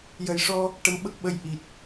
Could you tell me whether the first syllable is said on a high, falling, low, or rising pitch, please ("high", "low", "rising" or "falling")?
low